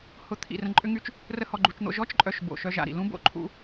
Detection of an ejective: present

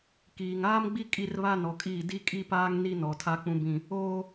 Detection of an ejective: present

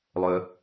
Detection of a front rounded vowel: present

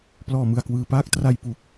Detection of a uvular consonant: absent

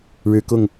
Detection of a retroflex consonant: present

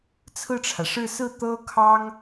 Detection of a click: absent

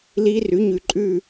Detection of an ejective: present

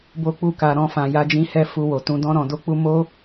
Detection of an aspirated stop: absent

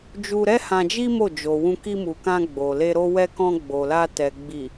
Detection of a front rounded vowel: absent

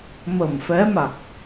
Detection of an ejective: absent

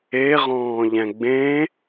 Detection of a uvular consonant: present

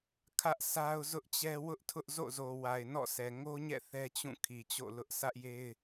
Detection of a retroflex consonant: absent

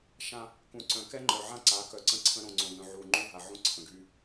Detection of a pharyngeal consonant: present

